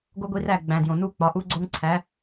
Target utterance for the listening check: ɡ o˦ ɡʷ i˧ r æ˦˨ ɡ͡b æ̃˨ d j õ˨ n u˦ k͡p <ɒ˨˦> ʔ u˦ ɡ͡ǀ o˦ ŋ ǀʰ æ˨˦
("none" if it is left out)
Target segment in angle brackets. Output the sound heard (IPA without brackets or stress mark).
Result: ɒ˨˦